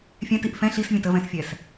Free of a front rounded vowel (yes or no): yes